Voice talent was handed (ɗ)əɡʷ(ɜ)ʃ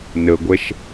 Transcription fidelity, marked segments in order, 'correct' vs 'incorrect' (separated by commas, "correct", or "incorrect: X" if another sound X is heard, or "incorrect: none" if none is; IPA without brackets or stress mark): incorrect: n, incorrect: ɛ